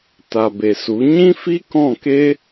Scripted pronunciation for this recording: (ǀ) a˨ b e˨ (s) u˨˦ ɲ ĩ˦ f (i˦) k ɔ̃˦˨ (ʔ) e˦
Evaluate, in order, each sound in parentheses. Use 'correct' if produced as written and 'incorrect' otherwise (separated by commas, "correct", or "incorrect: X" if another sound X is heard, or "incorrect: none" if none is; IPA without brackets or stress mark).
incorrect: t, correct, correct, incorrect: k